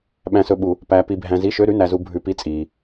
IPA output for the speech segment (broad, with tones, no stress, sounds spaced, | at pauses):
ɓ æ̃˧ s ɵ˧ ɓ u˧ | p æː˧ p i˧ bʱ æ̃˧ z i˧˥˧ ʃ ø˧˥˧ ɾ ʉ˧˥˧ n æ˧ z u˧ bʱ ʉ˧ p i˧˥˧ t͡sʼ iː˧